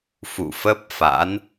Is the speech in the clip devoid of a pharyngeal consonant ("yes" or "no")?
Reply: yes